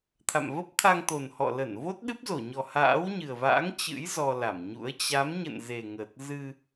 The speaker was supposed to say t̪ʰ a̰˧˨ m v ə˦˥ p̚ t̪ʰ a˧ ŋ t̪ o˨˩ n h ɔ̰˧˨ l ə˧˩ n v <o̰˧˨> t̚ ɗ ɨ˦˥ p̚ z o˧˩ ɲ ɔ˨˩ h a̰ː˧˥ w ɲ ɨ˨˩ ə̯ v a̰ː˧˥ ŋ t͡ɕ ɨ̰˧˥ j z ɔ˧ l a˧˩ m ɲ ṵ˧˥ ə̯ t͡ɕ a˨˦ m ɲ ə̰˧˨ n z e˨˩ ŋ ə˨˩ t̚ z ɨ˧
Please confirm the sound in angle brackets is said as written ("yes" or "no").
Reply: no